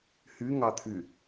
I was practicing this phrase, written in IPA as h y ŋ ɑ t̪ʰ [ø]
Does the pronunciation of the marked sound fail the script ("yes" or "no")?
yes